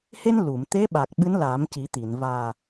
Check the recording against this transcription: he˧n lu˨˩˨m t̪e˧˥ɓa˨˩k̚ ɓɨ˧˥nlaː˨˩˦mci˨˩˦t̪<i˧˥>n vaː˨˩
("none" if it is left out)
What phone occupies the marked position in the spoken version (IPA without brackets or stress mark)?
i˨˩˨